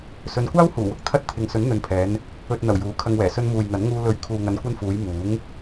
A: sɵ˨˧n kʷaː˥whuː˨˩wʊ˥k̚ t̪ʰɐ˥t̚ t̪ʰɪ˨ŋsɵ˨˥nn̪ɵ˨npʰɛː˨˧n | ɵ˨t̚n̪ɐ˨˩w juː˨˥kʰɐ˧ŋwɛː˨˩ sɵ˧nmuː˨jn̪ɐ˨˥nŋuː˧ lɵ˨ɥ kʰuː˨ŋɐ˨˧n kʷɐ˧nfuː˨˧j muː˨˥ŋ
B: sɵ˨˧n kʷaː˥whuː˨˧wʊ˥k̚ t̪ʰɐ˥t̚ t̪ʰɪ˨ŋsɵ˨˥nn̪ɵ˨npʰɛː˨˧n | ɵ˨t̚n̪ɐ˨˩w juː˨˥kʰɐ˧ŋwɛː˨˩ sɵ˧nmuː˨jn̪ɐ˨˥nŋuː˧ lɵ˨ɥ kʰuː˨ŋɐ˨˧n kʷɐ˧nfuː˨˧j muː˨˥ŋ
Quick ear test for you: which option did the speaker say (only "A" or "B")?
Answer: A